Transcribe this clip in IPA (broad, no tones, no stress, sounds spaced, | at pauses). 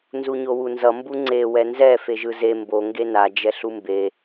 n z u ɲ o w u n z ʌ m b u ŋ͡ǀ e w ɛ n z ɛ f e ʒ ɯ z e m b o ŋ ɡ e n a d͡ʒ ɛ ɬ u m b e